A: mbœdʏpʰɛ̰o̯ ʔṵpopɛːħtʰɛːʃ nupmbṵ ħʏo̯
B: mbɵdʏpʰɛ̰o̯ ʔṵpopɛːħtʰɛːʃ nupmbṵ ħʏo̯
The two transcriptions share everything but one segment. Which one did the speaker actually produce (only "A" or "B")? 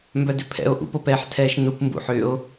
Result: A